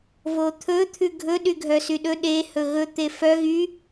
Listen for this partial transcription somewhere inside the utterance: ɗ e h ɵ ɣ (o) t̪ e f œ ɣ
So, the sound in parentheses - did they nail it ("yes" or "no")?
no